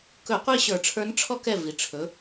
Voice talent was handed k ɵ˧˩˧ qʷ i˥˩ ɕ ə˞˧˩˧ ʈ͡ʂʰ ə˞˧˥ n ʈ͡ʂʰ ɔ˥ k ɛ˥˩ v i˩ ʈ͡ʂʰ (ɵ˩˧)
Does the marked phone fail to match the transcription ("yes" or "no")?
no